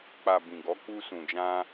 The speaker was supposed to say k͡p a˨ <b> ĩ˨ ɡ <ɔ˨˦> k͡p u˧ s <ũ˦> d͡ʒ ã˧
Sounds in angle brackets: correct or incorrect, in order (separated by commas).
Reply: correct, correct, incorrect